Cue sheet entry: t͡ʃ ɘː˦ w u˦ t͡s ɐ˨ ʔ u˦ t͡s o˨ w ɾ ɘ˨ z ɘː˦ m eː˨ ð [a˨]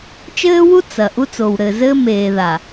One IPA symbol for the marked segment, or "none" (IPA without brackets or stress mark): a˨